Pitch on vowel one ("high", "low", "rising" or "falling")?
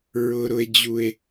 high